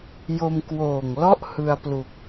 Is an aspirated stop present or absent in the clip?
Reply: absent